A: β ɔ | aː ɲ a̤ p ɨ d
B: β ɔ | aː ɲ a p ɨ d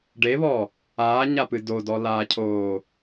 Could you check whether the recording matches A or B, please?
B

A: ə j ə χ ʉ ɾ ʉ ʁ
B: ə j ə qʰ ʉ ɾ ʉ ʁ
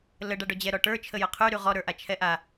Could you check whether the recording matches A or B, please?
B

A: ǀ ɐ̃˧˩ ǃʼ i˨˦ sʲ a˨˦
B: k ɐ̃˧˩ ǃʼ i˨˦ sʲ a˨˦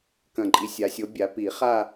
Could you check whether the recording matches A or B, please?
B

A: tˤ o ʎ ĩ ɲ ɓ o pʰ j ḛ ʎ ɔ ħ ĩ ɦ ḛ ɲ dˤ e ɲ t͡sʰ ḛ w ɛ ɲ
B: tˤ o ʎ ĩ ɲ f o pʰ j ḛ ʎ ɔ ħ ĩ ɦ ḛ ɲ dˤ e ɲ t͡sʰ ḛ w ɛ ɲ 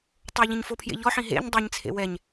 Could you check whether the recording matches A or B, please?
B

